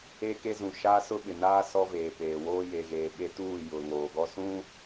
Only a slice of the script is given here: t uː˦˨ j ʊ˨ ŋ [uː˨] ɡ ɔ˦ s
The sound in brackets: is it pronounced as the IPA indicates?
no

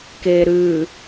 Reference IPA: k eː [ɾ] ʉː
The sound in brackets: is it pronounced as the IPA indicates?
yes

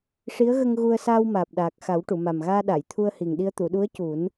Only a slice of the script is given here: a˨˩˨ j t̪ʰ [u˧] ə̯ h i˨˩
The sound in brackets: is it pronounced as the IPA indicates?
yes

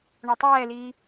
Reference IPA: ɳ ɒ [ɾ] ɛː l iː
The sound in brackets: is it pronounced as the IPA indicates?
no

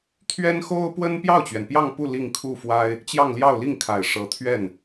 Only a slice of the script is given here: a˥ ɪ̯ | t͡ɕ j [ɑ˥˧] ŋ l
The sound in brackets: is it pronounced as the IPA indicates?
yes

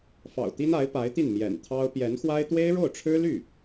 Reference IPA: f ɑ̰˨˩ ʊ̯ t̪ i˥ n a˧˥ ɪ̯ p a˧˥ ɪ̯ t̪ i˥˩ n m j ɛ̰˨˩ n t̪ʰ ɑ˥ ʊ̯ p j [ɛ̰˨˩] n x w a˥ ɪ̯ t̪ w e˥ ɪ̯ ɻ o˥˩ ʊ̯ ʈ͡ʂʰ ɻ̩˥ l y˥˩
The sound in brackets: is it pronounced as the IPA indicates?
no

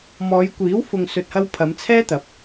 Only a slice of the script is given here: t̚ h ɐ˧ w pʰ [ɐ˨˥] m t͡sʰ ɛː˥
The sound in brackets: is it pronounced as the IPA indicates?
no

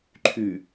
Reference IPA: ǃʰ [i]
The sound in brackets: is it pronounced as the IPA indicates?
no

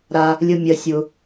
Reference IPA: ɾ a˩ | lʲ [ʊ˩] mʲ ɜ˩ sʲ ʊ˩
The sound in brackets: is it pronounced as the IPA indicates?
yes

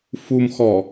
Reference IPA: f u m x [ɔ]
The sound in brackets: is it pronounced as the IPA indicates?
yes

